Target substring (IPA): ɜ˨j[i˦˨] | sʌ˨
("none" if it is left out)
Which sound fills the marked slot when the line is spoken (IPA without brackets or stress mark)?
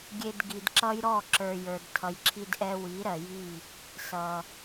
i˦˨